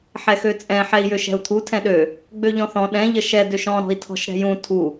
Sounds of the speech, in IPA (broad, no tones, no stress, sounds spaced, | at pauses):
ħ ɛ x ø t͡sʼ ɛ̃ ħ ɛ i̯ j ø ʃ ɛ̤ u̯ t̪ʰ u tʰ ɛ̃ ɗ ø | ɡ͡b ø ʎ ɔ̃ θ ɔ̃ ɗ ɛ̃ ʎ ə ʃ ɛ d ø ʃ ɔ̃ ɾ ɔ̤ i̯ tʰ ɔ̤ ʃ ɾ ɛ̤ j ũ tʰ u